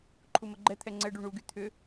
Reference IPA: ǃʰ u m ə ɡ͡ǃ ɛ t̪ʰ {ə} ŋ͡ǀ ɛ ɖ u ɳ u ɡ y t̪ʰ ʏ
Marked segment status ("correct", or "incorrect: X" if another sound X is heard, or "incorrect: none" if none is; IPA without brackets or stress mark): incorrect: ɛ